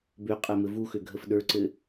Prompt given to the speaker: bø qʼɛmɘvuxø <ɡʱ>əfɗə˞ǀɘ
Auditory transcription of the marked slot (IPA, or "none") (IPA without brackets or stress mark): ɡʱ